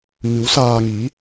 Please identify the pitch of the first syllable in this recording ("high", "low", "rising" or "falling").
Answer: rising